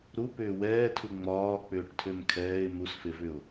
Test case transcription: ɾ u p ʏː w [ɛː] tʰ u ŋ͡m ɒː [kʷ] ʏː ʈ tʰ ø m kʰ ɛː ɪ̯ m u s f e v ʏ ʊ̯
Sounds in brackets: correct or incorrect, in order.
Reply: correct, incorrect

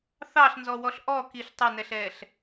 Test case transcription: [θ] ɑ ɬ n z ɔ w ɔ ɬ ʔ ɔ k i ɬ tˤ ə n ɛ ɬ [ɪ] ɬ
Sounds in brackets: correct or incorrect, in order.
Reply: correct, incorrect

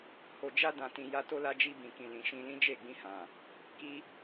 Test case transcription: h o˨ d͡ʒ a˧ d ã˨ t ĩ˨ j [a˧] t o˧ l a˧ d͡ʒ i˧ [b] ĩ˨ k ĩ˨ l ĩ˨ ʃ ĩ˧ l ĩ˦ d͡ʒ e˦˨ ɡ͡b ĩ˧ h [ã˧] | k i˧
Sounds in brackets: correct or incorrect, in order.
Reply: correct, correct, incorrect

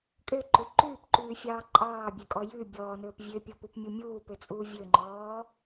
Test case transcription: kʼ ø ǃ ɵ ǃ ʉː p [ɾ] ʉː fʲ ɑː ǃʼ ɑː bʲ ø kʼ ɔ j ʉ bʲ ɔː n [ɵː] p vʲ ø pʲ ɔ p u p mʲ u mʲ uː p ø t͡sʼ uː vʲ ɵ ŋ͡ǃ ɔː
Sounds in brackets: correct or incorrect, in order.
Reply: incorrect, correct

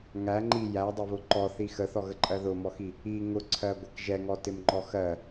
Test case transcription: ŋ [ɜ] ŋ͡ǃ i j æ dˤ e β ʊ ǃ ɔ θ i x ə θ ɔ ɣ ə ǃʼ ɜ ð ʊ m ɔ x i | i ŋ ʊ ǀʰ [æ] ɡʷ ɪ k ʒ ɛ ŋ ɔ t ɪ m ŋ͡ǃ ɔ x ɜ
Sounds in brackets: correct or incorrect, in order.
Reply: incorrect, incorrect

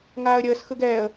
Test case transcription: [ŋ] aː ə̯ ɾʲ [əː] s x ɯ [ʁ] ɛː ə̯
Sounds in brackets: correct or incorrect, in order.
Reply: correct, correct, incorrect

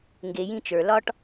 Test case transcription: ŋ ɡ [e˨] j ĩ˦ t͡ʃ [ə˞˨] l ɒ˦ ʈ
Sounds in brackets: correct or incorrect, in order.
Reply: correct, correct

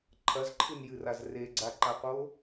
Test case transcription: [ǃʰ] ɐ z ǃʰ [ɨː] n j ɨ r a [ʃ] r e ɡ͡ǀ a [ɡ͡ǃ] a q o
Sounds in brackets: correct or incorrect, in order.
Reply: correct, incorrect, incorrect, incorrect

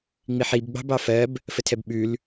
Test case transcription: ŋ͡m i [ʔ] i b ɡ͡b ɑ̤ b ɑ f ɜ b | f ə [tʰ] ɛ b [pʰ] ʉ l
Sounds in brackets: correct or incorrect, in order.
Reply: incorrect, correct, incorrect

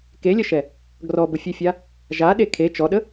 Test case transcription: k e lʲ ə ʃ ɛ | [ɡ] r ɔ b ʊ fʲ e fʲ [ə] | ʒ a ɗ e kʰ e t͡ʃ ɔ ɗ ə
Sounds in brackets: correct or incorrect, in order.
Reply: correct, incorrect

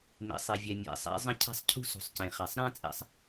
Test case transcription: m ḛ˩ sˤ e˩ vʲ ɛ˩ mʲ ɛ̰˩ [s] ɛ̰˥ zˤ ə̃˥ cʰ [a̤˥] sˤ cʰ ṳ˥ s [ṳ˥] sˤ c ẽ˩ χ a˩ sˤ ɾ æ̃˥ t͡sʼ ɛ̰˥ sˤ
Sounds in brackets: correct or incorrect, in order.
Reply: incorrect, correct, incorrect

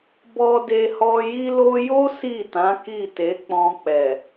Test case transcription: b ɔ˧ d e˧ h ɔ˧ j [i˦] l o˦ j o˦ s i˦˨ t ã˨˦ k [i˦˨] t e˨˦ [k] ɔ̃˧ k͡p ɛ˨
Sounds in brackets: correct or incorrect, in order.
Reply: correct, correct, incorrect

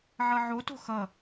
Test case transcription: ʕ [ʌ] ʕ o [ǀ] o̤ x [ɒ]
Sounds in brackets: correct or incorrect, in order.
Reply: correct, incorrect, incorrect

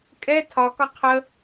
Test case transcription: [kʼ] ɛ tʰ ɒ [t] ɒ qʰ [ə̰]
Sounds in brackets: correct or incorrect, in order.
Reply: correct, incorrect, incorrect

